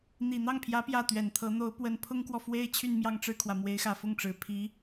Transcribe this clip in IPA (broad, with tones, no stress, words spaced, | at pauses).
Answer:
n̪i˨˩ n̪ɑ˥˩ŋpʰjä˧˥ pjä˥˩t̪ɥɛ˨˩nt̪ʰɤ˧˥ n̪o˧˥ʊ̯pwə˧˥npʰʊ˥ŋkwɔ˨ fwe˥ɪ̯ t͡ɕʰy˥˧nmjɑ˥˧ŋʈ͡ʂɻ̩˥˩kʰwä˩ mwe˧˥ɪ̯xä˨˩fʊ˥˩ŋʈ͡ʂɻ̩˨˩ pʰi˧˥